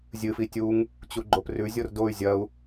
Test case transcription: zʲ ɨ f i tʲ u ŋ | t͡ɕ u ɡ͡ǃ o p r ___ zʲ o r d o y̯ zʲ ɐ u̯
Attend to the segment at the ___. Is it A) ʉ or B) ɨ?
A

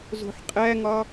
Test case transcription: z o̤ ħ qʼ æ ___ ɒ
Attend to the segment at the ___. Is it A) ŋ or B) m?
A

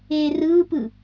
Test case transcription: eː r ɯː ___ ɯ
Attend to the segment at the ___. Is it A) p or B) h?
A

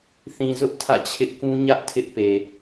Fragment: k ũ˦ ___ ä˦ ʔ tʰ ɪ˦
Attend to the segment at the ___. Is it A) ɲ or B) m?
A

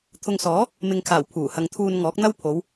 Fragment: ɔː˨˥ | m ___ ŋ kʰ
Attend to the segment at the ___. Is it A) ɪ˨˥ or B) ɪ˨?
B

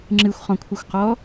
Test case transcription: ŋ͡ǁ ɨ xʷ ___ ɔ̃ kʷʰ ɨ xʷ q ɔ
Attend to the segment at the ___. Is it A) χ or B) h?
A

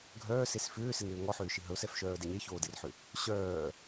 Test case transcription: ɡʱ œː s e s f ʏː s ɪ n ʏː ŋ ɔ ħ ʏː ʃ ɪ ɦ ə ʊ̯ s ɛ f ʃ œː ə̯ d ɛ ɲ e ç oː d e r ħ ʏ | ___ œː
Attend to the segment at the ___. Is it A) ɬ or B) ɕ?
B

